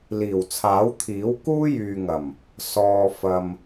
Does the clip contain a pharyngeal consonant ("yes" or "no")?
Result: no